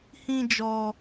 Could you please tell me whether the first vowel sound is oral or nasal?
nasal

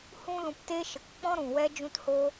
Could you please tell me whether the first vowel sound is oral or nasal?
nasal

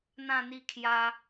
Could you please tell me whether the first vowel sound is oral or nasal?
nasal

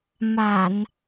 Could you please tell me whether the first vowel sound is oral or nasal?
oral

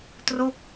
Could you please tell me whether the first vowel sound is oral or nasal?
oral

